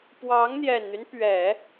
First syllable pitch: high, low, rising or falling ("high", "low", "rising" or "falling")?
rising